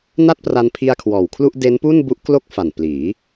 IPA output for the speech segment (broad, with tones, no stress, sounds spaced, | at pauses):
n a˥˩ t̚ p r a˧ n pʰ i˧ a̯ kʰ w ɔː˨˩ w kʰ l u˥˩ ʔ d e˦˥ n p u˥˩ n b u˦˥ ʔ k l o˥˩ k̚ f a˨˩ n p l iː˩˦